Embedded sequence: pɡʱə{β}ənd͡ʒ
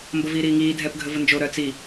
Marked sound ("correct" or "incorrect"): incorrect